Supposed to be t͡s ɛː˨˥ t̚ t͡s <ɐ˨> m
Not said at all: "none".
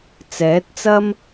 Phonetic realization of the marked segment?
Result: ɐ˥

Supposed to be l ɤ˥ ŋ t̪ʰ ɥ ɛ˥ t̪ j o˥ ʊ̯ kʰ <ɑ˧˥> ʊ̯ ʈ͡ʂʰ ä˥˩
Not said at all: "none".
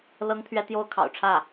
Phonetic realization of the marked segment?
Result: ɑ̰˨˩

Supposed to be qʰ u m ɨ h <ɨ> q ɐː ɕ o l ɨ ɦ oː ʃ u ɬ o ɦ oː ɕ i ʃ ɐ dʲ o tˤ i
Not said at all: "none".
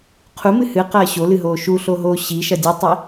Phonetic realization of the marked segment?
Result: ɨ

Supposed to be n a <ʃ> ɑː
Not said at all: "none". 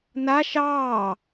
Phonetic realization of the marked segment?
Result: ʃ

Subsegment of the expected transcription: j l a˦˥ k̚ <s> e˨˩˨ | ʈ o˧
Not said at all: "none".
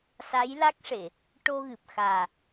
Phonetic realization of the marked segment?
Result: ʂ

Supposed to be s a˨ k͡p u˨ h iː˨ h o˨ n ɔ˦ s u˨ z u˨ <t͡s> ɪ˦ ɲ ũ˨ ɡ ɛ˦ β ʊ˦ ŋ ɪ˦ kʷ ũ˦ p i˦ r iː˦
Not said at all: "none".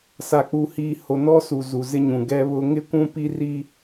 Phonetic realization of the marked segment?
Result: z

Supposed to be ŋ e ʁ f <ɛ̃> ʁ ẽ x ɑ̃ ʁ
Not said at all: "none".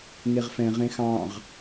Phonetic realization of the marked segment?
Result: ɛ̃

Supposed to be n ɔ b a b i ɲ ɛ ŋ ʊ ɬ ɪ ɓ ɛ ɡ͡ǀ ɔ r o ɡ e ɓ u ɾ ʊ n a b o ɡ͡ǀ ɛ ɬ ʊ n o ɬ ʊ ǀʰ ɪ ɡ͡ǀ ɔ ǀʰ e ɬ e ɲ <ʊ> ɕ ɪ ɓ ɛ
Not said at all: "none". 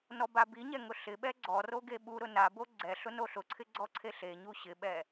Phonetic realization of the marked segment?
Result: u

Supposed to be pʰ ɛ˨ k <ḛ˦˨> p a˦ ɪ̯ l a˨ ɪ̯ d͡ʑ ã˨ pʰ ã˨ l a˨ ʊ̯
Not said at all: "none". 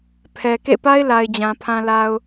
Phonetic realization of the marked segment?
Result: ḛ˦˨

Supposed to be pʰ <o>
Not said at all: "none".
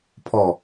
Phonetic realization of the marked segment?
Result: ɔ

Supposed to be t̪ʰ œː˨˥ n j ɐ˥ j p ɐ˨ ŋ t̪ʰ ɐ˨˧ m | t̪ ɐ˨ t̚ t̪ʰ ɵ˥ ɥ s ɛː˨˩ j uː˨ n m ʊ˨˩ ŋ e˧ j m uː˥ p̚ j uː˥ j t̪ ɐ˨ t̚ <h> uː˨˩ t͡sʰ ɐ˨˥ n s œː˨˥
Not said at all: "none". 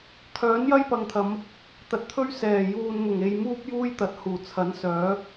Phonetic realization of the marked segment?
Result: h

